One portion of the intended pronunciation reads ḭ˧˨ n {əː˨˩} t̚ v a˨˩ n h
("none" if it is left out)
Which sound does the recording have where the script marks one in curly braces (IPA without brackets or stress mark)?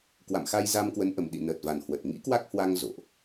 əː˨˩